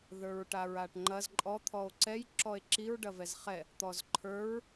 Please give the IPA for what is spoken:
ð ə˞ ɹ ʈ a ɹ a ʈ ŋ͡ǃ ɐ z ǃʼ ɔ t̪ʰ ɔ o̯ ǀ ɛ j ǁ ɔ e̯ ǁ i ɹ ɖ ɐ v ɛ z χ ɛ | t̪ ɔ z ǃʰ ə˞ ɹ

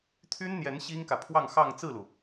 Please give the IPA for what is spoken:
t̪ʰ y˥ n n̪ j ɛ˧˥ n ɕ i˥ ŋ k ä˨ pʰ w ɑ˥˧ ŋ x ɑ˥˧ ŋ t͡s ɹ̩˥˩ l u˩

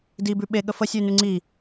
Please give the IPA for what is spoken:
d i b ʉ ɓ e ɠ ə f ə sʲ ʉ n ʉ ŋ͡ǀ i

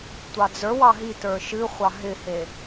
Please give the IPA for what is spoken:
tʷ ɑ d͡z ə˞ w ɑ ɦ i t ə˞ ʃ ɨ χʷ ɑ ɦ ɪ h e

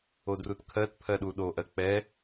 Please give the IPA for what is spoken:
o d r u t kʰ ɜ t pʰ ɜ ɗ u ɗ o ʔ ɜ k͡p ɛ

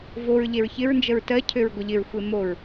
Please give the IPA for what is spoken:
v o ɹ ʎ e ɹ ç ɪ ɹ n d͡ʒ ə ɹ t ɜ cʰ ø ɹ ɡʷ ə ʎ ɪ ɹ xʷ e m o ɹ

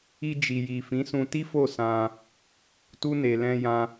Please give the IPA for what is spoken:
i˧ d͡ʒ i˨ j i˨ f ĩ˨˦ s ũ˧ t i˦ f o˦˨ s ã˧ | t u˧ n e˨ l ɛ̃˧ j ã˧

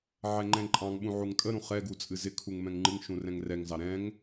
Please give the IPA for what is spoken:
ʕ ɛ ŋ͡ǃ ɛ̃ ǃʼ ɑ̃ ŋ ɓ ũ ʕ u ŋ tʼ ə ɾ ũ χ ɛ ɡ u t͡sʼ ɨ z ɪ kʰ u ŋ m ɛ̃ ŋ ŋ͡ǃ ɨ ŋ ʃ ũ r ɛ̃ ŋ r ɛ ŋ z ɑ ɾ ɛ̃ ŋ

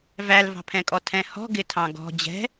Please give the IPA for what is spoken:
v æ l v ɑ̤ pʰ ɛ̃ kʼ ɔ tʰ ɛ̃ h ɔ̤ ɡ ɪ tʰ ɑ̃ ɡ ɔ̤ d͡ʑ ɛ̤

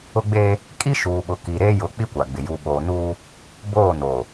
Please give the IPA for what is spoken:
ʊ˦ ɡ͡b eː˦ | kʼ i˦ ʃ uː˨ ɓ ʊ˨ k i˨ ɾ e˦ j ʊ˨˦ k͡p i˦ kʷ a˨ ɡ͡b ɪ˨ j u˨ ɓ oː˨ n uː˦ | b oː˦˨ n oː˨

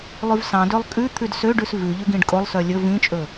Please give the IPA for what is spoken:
lˠ ʉ v s ɑ̃ d ø lˠ kʼ ʉ t̪ʰ ʉ d s ø ɖ ʉ s v ʉ ʎ ʉ ɡ ĩ ɖ kʼ o lˠ s œ lʲ ɵ v ĩ t͡ʃʼ ɵ

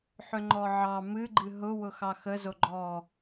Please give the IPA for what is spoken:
ħ ʏ ŋ͡ǃ ɔ ʕ ɑ m ɨ ɡ͡ǃ ɨ ɦ ʊ w ʊ x ɑ x ə z o ɡ͡ǃ ɔ

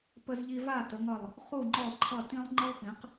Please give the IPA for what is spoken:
p ə˧ z ʎ i˧ v a˥˩ t ə˩˥ ŋ ʌ˥˩ lˠ | χ u˥˩ ŋ͡ǃ ɔ˥˩ lˠ ǃʰ ʌ˥˩ t ĩ˥ lˠ ŋ͡ǃ ə˥ lˠ p ĩ˩˥ q

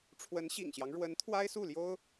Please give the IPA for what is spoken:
ʈ͡ʂʰ w ə˧˥ n ɕ ḭ˨˩ ŋ ɕ j ɑ˦ ŋ ɻ w ə˧˥ n t̪ʰ w a˥ ɪ̯ s u˥˩ l j o˥ ʊ̯

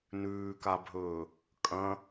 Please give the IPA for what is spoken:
n ʉː k a bʱ ɵː | kʼ ɐ̃

